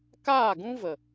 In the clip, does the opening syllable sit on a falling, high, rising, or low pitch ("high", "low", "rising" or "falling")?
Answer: falling